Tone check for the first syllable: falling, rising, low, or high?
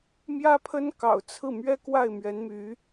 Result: high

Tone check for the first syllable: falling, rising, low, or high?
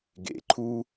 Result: low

